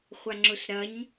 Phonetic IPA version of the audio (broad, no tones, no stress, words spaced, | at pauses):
χʷaŋ͡ǁʊsɾɐɲ